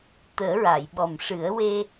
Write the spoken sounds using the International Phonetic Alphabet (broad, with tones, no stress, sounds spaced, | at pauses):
t̪ əː˨˩˦ ɹ a˨˩˨ j ɓ ɔ˨˩ m ʂ ɨ˨˩˦ ə̯ w e˧